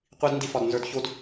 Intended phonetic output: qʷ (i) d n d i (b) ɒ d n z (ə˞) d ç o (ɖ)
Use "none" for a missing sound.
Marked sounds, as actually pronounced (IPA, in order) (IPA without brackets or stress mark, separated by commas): i, f, ə˞, d